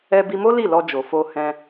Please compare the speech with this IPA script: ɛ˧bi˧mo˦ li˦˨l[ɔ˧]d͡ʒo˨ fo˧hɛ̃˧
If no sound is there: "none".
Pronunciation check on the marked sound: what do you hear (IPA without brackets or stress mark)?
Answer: ɔ˧